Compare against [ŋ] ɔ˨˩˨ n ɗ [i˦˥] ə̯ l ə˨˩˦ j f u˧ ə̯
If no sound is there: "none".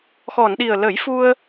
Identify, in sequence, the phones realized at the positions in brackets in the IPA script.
x, i˨˩

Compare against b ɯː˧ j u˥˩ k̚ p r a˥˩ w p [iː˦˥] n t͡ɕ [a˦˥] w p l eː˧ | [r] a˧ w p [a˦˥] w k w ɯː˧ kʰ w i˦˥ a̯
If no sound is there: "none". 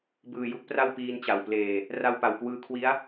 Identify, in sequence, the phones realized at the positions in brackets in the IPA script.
iː˦˥, a˨˩, r, a˨˩

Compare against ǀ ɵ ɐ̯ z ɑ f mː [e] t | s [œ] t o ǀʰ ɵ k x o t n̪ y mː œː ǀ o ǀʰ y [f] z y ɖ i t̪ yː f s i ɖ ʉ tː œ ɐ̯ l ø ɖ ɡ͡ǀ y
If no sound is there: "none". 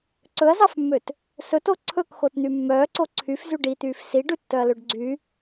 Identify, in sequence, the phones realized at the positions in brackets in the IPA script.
ø, ɵ, f

